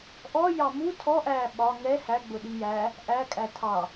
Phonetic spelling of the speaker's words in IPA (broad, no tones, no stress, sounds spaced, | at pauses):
ʔ ɔ j ɑ m u tʰ ɔ ʔ æː ɓ ɒ ŋ ɛ h æ ɡ͡b ʊ ɗ i j æ | ʔ æ kʼ æ tʰ ɑ